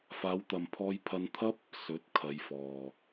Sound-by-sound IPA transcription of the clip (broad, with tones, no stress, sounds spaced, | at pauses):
f aː˨˧ w t̪ ɐ˨ m pʰ ɔː˧ j pʰ ɐ˧ n t̪ʰ ɐ˥ p̚ | s ɵ˨˥ t̚ kʰ ɐ˨˧ j f ɔː˨